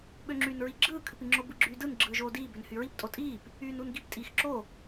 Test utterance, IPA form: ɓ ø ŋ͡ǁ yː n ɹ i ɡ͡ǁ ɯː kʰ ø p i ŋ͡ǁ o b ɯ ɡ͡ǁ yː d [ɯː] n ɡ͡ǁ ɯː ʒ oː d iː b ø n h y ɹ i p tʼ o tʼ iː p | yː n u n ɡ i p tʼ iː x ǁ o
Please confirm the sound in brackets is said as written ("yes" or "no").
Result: no